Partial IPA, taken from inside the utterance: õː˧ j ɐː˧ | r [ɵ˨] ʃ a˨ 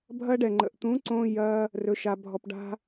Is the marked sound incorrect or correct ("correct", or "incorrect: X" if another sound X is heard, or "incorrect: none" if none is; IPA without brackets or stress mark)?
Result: correct